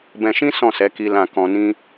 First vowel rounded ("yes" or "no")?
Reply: no